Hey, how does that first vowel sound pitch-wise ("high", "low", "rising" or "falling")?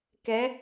rising